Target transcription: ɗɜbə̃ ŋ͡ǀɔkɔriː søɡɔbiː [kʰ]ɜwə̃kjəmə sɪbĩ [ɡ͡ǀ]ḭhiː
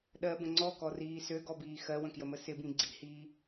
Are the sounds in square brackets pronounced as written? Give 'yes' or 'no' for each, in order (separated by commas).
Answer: no, yes